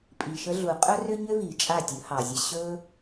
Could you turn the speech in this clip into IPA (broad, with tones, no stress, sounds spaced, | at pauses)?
pʼ i˨ ʃ ə˧ ɮ u˨ qʼ ɵ˦ r ʏ˦ ɲ ʏ˦ v i˨ t͡ʃʼ a˦˨ tʲ ɵ˨˦ h ɑ˨ zʲ ə˧ ɕ ɵ˦